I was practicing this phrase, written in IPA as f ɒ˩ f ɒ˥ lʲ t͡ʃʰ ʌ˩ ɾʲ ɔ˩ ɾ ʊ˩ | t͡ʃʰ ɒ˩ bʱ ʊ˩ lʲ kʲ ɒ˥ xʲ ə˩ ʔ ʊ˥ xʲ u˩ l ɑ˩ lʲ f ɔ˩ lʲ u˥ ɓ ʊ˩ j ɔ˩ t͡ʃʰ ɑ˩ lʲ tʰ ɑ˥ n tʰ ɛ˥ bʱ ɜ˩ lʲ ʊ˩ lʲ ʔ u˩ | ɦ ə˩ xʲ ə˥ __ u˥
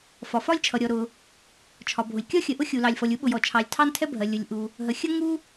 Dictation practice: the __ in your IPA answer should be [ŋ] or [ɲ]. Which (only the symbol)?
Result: ŋ